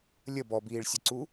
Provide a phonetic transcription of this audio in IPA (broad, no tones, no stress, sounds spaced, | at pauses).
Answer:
lʲ ə b ɔ b iː ɭ sʲ ə ǀ u